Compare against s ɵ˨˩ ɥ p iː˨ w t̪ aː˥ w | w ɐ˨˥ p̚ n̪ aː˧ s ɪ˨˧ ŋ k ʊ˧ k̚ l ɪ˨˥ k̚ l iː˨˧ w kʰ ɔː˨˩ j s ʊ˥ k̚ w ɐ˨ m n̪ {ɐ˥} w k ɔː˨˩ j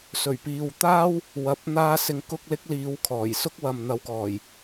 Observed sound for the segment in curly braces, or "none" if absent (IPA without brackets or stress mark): ɐ˨˧